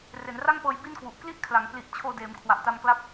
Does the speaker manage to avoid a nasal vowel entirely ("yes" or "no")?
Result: yes